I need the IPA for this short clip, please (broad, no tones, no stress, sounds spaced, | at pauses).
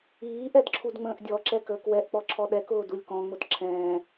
iː ʔ ɛ d ǁʰ u d ŋ͡m ə̃ː ʔ dʲ ɔ ǁ ɛ k əː k w ɛ ʔ k͡p ɔ ǁʰ ɔ ɗ ɛ k ʊː d u lʲ k ɔ̃ ŋ͡m ʊ d ǁʰ ɛ̃ː